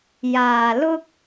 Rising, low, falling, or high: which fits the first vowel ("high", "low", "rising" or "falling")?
low